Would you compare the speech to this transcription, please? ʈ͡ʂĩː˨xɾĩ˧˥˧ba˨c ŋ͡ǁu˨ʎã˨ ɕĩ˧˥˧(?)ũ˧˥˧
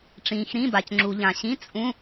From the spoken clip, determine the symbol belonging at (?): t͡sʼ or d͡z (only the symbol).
t͡sʼ